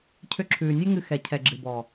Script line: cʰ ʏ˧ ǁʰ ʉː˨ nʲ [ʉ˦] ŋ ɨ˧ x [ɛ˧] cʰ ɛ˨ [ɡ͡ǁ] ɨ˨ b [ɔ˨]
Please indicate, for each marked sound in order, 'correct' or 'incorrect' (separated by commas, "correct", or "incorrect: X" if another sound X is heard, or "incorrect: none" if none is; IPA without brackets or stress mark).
correct, incorrect: ɛ˨, correct, correct